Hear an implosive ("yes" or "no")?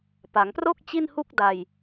no